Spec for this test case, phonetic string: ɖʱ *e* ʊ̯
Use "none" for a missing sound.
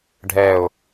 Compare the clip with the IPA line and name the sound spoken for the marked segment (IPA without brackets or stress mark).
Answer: ɛ